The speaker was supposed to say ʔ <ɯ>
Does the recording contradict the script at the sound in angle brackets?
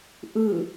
no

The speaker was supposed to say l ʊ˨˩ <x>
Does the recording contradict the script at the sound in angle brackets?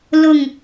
yes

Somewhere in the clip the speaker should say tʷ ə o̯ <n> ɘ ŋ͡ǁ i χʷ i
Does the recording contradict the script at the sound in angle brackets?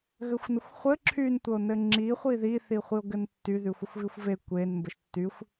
no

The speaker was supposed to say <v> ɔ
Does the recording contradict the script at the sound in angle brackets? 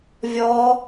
yes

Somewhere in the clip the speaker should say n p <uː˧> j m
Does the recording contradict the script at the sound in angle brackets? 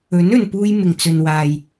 no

